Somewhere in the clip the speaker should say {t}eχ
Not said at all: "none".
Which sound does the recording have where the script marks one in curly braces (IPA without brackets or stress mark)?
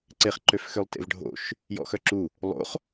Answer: ǀ